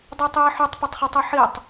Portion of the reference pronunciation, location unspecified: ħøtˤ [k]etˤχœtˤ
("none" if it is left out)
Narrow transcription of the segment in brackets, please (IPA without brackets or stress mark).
p